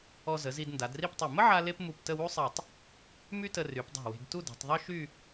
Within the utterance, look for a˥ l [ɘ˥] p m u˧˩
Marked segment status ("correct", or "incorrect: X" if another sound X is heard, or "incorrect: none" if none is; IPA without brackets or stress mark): incorrect: e˥